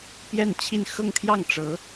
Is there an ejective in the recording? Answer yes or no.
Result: no